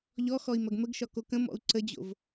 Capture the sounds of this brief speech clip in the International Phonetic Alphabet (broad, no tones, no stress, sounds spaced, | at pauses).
ʎ ɔ x ɔ i̯ m ɐ ɡ m ə ɡ ʃ ɒ k o k ə̃ m ɔ̰ u̯ ǀ ə d͡ʑ o̰ v